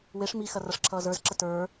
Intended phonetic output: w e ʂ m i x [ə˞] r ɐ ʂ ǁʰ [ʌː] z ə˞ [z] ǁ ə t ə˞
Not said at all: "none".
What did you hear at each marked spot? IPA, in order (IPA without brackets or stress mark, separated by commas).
ɐ, ʌː, z